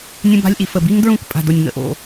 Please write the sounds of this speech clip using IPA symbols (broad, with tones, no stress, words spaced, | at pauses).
nʲə̃˦ba̤˦lʲʔi˨fə˦˨ bi˦ŋdɹũ˦˨kpʼa̤˨do˨nʲ ŋə̰˦ʔo̰˦˨